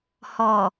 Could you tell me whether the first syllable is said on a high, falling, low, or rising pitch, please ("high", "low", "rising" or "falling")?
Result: low